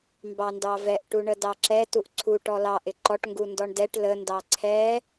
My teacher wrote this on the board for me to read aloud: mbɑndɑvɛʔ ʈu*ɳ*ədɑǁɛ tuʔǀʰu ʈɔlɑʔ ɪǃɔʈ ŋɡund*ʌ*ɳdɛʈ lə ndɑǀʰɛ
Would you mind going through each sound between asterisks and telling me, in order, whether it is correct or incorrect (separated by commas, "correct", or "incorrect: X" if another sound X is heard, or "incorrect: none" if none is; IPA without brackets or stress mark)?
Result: correct, incorrect: ɔ